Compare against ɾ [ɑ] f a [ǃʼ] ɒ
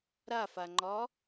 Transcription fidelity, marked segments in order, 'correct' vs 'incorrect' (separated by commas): incorrect, incorrect